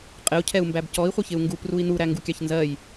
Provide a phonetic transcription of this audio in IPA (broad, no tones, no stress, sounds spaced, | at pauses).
qʼ ɪ u̯ cʰ ɛ u̯ m b æ b c ɔ i̯ χʷ ɪ ç ɪ u̯ ŋ ɡ u p r u i̯ n u ɾ æ ŋ ɡ u kʲ ɑ ç n z ɜ j